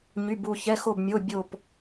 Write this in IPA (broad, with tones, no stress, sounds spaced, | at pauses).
ɲ y˩˧˩ b u˧˩ ç ɛ˩˧˩ x o˧˩ b mʲ o˩˧˩ bʲ o˧˩ p